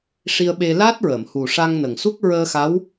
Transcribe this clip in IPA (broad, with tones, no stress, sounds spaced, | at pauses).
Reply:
ʂ i˧ ə̯ ɓ e˧ l aː˦˥ t̚ ɹ əː˨˩˨ m h u˨˩ ʂ a˧ ŋ n ə˨˩ ŋ s u˦˥ k̚ ɹ əː˧ x a˧˥ w